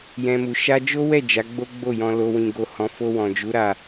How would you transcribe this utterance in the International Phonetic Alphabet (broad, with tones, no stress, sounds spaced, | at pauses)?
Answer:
j ɛ̃˧ m u˨ ʃ a˧ d͡ʒ o˦ w ɛ˦˨ d͡ʒ a˨˦ ɡ͡b o˦ ɡ͡b o˦˨ j ɔ̃˧ l o˧ w ĩ˧ ɡ o˧ h ɔ̃˧ f o˧ w ɔ̃˨ d͡ʒ u˨˦ ɾ a˦˨